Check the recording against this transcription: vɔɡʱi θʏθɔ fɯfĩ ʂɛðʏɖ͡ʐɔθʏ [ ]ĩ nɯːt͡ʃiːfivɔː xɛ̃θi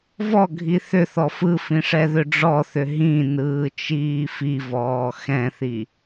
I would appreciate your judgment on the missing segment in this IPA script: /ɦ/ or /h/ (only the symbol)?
ɦ